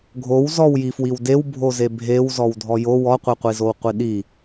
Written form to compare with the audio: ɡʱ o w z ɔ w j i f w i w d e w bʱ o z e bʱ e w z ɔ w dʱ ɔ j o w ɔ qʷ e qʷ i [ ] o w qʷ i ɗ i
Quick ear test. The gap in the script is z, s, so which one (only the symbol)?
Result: z